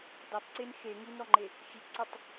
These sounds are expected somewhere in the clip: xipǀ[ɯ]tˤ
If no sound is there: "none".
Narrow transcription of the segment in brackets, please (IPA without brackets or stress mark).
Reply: ɯ